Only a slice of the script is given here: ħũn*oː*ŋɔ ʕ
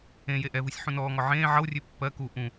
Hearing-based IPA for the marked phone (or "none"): ɔː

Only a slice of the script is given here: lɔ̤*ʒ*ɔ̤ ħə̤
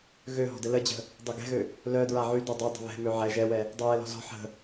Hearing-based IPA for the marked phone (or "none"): z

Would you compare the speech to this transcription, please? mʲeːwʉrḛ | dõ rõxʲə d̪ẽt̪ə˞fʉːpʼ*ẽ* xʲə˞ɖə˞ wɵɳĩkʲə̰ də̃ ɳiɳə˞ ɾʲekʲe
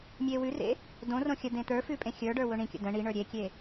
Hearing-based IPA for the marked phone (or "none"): ẽ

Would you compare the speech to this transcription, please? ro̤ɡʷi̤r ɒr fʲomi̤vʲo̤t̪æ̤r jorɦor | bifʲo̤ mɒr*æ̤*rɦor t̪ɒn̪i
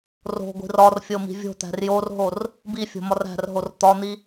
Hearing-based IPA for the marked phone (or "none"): æ̤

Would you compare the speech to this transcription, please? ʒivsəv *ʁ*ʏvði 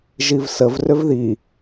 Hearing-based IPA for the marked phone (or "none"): r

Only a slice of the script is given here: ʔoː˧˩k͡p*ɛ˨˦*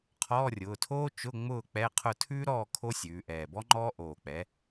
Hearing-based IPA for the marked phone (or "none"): ɛ˨˦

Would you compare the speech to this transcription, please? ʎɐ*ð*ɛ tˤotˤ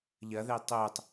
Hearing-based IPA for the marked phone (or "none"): ð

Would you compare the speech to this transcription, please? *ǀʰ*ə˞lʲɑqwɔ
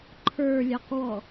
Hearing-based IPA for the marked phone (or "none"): ǃʰ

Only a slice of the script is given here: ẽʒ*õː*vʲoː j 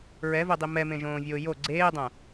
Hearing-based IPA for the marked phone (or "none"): õː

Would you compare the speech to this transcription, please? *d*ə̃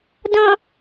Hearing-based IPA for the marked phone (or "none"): d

